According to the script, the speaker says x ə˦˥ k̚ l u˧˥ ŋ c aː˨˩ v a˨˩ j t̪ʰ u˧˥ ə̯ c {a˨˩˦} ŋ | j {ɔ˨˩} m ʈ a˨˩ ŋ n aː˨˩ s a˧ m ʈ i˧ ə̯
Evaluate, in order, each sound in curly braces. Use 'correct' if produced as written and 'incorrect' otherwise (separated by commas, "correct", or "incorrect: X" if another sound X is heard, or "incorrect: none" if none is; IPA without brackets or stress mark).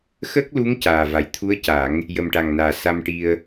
correct, incorrect: ə˨˩